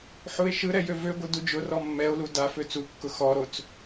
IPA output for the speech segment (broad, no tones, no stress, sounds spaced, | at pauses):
ħ u e̯ ʃ ɯ ɾ ɛ j ø v ø ɡʷ ɯ d u d͡ʒ ʊ r ɔ mː ɛ o̯ l u d a f ø t͡s u kː ʊ x ɔ ɾ o t͡s